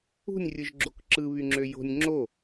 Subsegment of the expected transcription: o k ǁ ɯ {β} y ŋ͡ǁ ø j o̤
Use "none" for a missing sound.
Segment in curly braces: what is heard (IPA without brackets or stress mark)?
β